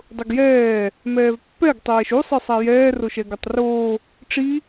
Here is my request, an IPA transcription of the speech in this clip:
dˤ ʊ ɡ j ɛː | m ɛː v pː ɛ ɡ tˤ ɛː ʃ u sˤ i sˤ a j ɛː r o ʃ ɛ ɡ ʊ tˤ r oː | ʈ͡ʂ i

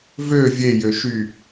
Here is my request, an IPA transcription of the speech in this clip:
v ø vʲ e j ø ʃ y

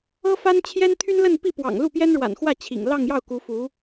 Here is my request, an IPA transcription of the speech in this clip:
ɤ˥ f a˥ n t͡ɕʰ j ɛ˥ n t̪ʰ y˥ n l ə˥˧ n p i˥˩ p w ɑ̰˨˩ ŋ l u˥˩ p j ɛ˥ n ɻ w a̰˨˩ n x w ä˥˩ t͡ɕʰ ḭ˨˩ ŋ l ɑ˥˧ ŋ j ɑ˥˩ ʊ̯ k u˧˥ f u˧˥

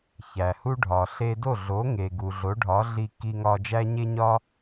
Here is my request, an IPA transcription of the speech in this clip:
ç æ˩ h u˥ ɖʱ ɒ˩ ɬ e˧ d o˥˩ ɮ o˩˥ ŋ e˩ ɡ u˩ ɮ o˩˥ ɖʱ ɒ˩˥ ɮ i˧ k i˧ ŋ ɒ˧ d͡ʒ æ˥ ɲ e˥ ɲ ɒ˥

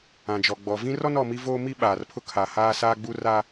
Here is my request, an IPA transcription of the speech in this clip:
ã˨ d͡ʒ ɔ˨ ɡ͡b ɔ˨ v ĩ˦ r ɔ˦ n ɔ˨ m i˦ v oː˦ m i˦ ɓ aː˨ r pʰ ʊ˦ kʰ a˨ h aː˦ s aː˦ ɡ͡b u˦ r a˦

